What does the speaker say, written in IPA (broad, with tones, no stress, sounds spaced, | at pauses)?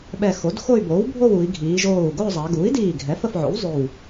ɓ ɛ˧˩ x o˩˥ d x o˥˧ y̯ b oː˩˥ w bʱ o˥˧ w u˩˧ i̯ ɡʱ iː˩˧ ʒ oː˧˩ u̯ ɡ o˥˧ zˤ a˩˧ ɡ uː˩˥ i̯ d iː˧˩ ɡʱ ɛ˩˥ f ə˩˧ f ʕ o̰˩˥ w zˤ ʏ˧˩ w